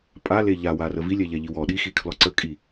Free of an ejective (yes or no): no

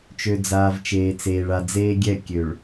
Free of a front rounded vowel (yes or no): no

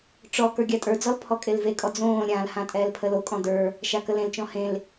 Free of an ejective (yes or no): no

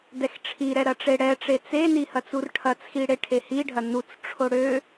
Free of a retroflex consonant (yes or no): no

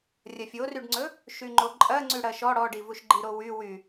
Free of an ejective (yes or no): no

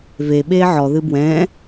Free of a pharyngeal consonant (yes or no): no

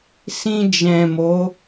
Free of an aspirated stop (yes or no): yes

